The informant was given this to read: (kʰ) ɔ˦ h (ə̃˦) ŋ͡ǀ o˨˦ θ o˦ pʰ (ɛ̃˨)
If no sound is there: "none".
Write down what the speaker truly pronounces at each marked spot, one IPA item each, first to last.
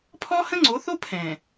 pʰ, ə̃˦, ɛ̃˨

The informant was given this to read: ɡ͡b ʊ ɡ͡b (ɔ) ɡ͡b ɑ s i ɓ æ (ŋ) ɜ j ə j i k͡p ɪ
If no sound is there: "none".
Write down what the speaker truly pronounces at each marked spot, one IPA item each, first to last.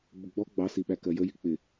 ɔ, k

